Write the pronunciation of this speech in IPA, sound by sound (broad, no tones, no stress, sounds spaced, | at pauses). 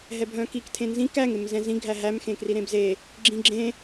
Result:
ɦ ɛ bʱ œ̃ k i k tʰ ẽ n z ĩ k æ ŋ e m z ɛ̃ z ĩ ɡʱ æ ɦ æ m x ẽ k r i ɾ ẽ b z e | ɡ͡ǁ ĩ ɡ͡ǁ ẽ